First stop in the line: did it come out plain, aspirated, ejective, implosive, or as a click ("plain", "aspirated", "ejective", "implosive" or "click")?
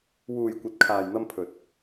plain